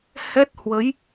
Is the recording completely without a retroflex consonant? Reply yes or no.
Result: yes